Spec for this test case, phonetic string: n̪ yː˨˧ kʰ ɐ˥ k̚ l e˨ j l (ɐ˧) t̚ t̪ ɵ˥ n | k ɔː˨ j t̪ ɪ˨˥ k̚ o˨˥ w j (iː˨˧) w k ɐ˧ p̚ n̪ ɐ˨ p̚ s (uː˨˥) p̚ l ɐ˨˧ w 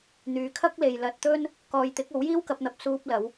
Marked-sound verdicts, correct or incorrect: correct, incorrect: iː˥, incorrect: uː˧

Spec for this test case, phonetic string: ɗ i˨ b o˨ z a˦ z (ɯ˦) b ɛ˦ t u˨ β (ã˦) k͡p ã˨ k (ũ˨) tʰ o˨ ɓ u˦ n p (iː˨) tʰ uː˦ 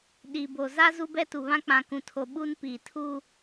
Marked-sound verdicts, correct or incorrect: incorrect: u˦, correct, correct, correct

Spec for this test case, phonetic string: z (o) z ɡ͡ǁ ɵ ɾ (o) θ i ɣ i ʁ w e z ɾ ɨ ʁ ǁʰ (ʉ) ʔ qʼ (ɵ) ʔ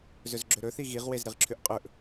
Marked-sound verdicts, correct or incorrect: incorrect: ɵ, incorrect: ɵ, correct, correct

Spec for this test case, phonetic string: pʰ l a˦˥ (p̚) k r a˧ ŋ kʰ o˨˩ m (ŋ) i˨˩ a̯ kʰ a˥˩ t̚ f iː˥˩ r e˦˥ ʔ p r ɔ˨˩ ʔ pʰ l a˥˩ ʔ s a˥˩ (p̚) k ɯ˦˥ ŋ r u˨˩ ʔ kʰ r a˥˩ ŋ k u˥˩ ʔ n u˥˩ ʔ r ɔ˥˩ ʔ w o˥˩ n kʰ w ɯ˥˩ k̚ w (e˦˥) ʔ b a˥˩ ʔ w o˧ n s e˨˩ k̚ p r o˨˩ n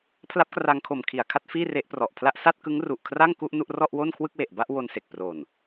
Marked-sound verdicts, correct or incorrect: correct, incorrect: kʰ, incorrect: t̚, incorrect: e˨˩

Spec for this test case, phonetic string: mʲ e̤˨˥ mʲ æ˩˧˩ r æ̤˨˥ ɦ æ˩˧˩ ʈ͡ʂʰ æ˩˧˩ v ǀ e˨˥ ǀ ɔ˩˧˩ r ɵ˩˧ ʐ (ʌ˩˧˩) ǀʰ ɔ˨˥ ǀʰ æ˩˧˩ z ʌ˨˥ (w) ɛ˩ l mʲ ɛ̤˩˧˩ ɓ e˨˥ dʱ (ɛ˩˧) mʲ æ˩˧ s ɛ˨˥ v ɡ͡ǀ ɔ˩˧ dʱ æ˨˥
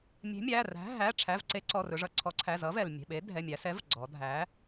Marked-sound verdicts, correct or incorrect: incorrect: ʌ˩, incorrect: v, incorrect: ɛ˩˧˩

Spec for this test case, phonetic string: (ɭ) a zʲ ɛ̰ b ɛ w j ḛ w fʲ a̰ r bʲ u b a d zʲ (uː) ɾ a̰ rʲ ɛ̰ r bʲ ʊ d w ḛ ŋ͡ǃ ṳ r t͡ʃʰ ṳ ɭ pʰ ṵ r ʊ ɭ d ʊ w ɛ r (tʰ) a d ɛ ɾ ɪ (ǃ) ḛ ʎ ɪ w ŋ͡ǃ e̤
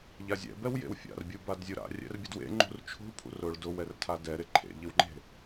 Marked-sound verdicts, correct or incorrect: incorrect: ʎ, incorrect: u, correct, incorrect: ǃʰ

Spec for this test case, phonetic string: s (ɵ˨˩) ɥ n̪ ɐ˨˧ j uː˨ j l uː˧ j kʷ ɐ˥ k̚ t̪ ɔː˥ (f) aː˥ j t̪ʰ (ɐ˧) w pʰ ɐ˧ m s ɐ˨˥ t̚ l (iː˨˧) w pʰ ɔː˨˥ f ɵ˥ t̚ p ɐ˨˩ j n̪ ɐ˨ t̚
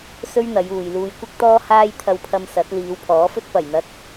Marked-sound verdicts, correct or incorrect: incorrect: ɵ˥, incorrect: h, correct, correct

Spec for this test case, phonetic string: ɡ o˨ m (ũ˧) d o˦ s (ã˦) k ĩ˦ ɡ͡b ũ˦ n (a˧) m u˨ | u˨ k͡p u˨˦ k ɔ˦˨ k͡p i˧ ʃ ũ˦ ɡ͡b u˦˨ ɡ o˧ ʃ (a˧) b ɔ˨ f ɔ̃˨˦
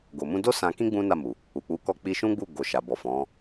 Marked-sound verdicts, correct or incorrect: correct, incorrect: ã˧, incorrect: a˦˨, incorrect: a˨

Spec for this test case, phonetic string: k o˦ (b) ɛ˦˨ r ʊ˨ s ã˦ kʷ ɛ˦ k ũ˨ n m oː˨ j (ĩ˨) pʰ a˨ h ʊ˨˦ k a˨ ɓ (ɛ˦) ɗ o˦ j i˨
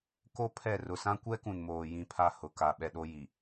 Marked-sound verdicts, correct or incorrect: incorrect: pʰ, correct, incorrect: ɛ˨

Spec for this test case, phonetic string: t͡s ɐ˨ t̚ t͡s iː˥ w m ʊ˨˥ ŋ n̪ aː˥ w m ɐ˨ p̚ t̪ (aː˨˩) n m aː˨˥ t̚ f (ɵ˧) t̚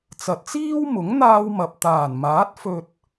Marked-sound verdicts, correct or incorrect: correct, correct

